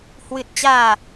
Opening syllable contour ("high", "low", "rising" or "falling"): low